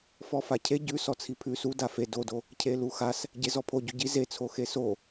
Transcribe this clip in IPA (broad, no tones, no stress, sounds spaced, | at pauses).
f ɔ f a cʰ e ɟ ʉ s ɔ t͡sʰ i pʰ ʉ s u d a f e d o d o | cʰ e l u x a s | ɟ e z ɔ pʰ o ɟ u ɟ i z e t͡sʰ o x e s o